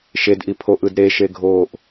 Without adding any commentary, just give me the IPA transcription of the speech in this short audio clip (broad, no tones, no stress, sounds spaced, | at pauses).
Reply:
ʃ e d ʔ i pʰ o ʔ ɯ d ɾ e ʃ e ɡʱ oː ʔ